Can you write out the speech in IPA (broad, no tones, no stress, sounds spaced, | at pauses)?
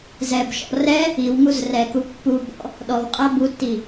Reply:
z ɛ b ʃ ɔ̰ r ɛ | i w ŋ u z r ɛ k u pː u b ɔ̰ | ɗ ɔ w qʼ a b u tː i